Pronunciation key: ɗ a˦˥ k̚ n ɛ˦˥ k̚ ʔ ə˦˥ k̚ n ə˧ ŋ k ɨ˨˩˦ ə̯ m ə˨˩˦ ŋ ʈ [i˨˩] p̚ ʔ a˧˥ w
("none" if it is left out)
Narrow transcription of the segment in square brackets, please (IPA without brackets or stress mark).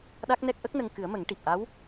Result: i˨˩